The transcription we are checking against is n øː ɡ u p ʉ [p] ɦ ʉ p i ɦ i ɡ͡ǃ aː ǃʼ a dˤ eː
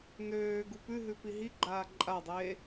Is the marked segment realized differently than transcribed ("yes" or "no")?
yes